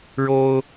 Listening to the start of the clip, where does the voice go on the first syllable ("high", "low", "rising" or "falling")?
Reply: high